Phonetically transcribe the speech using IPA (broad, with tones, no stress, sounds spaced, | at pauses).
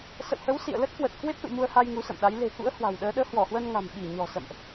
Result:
s ə̰˧˨ w h ə˨˦ w s ḭ˧˨ ə̯ l ə˦˥ t̚ k w ə˨˩ t̚ k w e˦˥ p̚ s ṵ˧˨ m u˧ ə̯ h a˧ j ŋ u˨˦ s ə̰˧˨ m ɗ a˨˦ j l e̤˨˩ k ṵ˧˥ ə̯ h w a̤˨˩ w ɗ əː˨˦ ɗ əː˨˦ h w ɔ˧˩ h w ə˧ n ŋ a̤˨˩ m ɓ i˧˩ ɲ ɔ̤˨˩ s ə̰˧˨ m ʔ